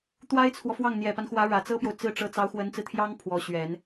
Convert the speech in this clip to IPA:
t̪ w a˥ ɪ̯ t͡sʰ w ɔ˨ f w ɑ˥˩ ŋ n̪ j ɛ˨˩ p a˦ n x w ä˧˥ ɻ ä˨˩ t͡s ɤ˥ p j o˨ ʊ̯ t͡s ɹ̩˥˩ ʈ͡ʂ ɤ˧˥ t͡s ɑ˧˥ ʊ̯ x w ə˧˥ n t͡s ɹ̩˧ t̪ʰ j ɑ˥ ŋ pʰ w ɔ˧˥ ɕ ɥ ɛ˨˩˦ n

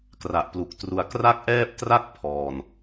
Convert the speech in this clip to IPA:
k r a˨˩ ʔ p l u˨˩ k̚ t r u˧ a̯ k r a˥˩ k̚ ʔ ɛː˥˩ p̚ t r a˥˩ k̚ pʰ ɔː˨˩ n

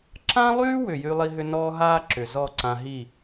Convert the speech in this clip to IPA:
ǁ ã˦ lˠ yː˦ w ʏ˨ j y˦ lˠ i˦ ɦ ʏ˦ n ɔː˦ ɦ aː˦ ǁ ʏ˨ z ɔ˦˨ ǀ ã˧ ɦ i˦˨

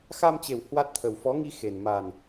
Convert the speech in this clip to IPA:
x a˧ m t͡ɕ e˨˩ w h w a˦˥ t̚ t̪ʰ ə˨˩ w f ɔ˨˦ ŋ i˧ x e˨˩ n m a˨˩ n

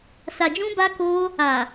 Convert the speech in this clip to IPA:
s a˨ d͡ʒ ũ˧ b a˧ k o˧ | a˨

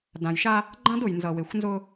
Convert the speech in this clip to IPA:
d ã˨ j ʃ a˦ | ɡ͡ǃ ã˦ d ʊ˨ j n z ʌ˨ w e˨ xʷ n z ʊ˦

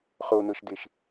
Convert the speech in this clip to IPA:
χ o n̪ ɤ ʃ d̪ e ʃ

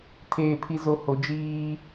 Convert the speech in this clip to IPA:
tʰ eː˨ pʰ i˨ z o˨ h o˨ d͡ʒ iː˦

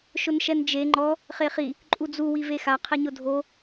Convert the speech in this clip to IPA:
ʃ ʊ n ʃ ɛ n d͡ʒ e ŋ͡ǃ ɔ | χ e χ i | ǃʼ u d͡z u w i v e x a qʰ ɪ ɲ ʊ dʱ o

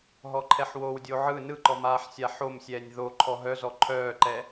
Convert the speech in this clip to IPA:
ɦ ɔ ǃʰ ɛ ħ w o w dʲ o ʕ ɯ n ɯ ǃ ɔ m aː ħ sʲ a ħ o m sʲ ɛː nʲ ð o ǃʰ ɔ ɦ œ z ɔ ǃʰ œː ǃ ɛ

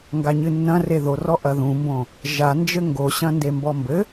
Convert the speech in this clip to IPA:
ŋ ɡ a ɲ ɨ nː ɐ̃ r e ð o r ɔ ʔ ɐ ð ũ m b õ | ʒ a n d͡ʒ ɘ ŋ ɡ o ɕ ɐ̃ n d e m b ɔ m b ɘ

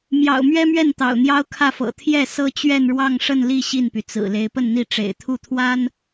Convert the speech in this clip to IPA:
m j ɑ̰˨˩ ʊ̯ m ɥ ɛ˥ m ɥ ɛ˥˩ n t̪ ɑ̰˨˩ ʊ̯ n̪ j ɑ˥ ʊ̯ kʰ ä˥˩ f ɤ̰˨˩ t̪ʰ j ɛ˥˩ s ɤ˥ t͡ɕ ɥ ɛ˥˧ n ɻ w ɑ˥˧ ŋ ʂ ə˥˧ n l i˥˧ ɕ i˥˩ n p y˩ t͡s ɹ̩˨˩ l e˧˥ ɪ̯ p ə˥˧ n n̪ i˥˩ ʈ͡ʂ ḛ˨˩ ɪ̯ t̪ʰ u˥˩ t̪ʰ w a˥ n

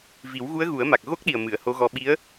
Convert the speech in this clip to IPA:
v i˨˩˦ w ɣ u˧˥ ə̯ ɣ u˨˩˦ ə̯ m a˨˩ k̚ ɣ o˦˥ k̚ ɗ i˨˩ ə̯ m ɨ˨˩˨ ə̯ h o˧˥ ɣ ɔ˧ ɓ i˧˥ ə̯

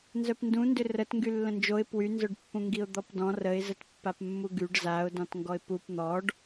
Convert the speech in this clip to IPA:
n z œ p n d ũ n d ʏ r ə t ŋ ɡ y lː ə̃ n d͡ʒ o ɪ̯ p w y n z œ ɖ pː ũ ŋ ɡ i ʊ̯ d̪ ɔ p d ɔ̃ r ə ɪ̯ z ə t pː a p mː u ɡ y ɖ z a ʊ̯ d ɔ̃ t ŋ ɡ ɔ ɪ̯ p u p n̪ ɔ ɖ

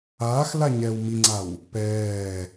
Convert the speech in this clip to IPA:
aː x l a ɲ ɛː w m i ŋ͡ǀ a w | p ɛː

